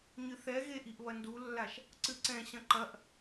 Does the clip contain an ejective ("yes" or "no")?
no